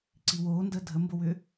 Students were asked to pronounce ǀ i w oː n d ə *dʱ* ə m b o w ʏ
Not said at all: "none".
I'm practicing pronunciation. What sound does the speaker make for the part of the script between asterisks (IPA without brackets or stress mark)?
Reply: dʱ